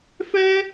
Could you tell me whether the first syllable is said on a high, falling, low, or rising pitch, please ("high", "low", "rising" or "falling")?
high